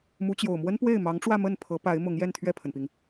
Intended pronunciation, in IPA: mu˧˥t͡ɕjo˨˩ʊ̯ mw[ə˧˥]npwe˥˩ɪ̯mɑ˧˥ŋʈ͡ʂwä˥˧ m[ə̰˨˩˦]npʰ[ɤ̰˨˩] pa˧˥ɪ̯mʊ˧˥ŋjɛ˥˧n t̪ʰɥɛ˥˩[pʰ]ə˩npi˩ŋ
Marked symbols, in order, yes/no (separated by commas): no, no, no, yes